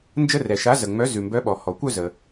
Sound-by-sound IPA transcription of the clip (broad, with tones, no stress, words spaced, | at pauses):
nd͡ʒə˥˨rɛ˨ʃa˧˥˧ zə˨ŋ͡mœ˧˥˧ zʉ˨mbœ˧˥˧ɓɔ˩˥ hɔ˩˥kʷœ˥˨zə˨